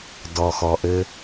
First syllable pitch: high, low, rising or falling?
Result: low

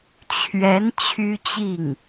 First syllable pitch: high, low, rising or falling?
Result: rising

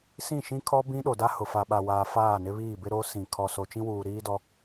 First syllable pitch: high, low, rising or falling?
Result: falling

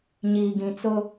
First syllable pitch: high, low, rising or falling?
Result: low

